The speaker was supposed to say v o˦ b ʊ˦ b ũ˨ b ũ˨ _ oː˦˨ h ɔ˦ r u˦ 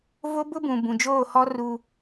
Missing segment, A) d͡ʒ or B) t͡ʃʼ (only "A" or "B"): A